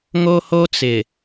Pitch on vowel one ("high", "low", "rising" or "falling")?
high